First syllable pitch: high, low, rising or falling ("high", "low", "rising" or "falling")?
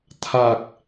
low